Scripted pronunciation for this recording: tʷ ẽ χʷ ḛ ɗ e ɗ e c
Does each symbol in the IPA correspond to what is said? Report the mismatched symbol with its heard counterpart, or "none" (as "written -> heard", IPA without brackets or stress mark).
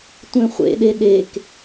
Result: c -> k